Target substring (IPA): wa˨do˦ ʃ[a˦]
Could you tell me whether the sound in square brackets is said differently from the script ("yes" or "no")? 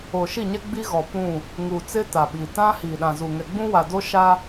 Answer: no